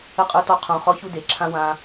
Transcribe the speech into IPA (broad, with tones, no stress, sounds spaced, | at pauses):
ə˦ qʼ ə˞˦ t ɔ˦ qʰ õ˧ χ ɔ˦ ç u˦ d e˨ ǁʰ ã˦ w ã˧